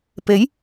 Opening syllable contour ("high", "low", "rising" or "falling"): rising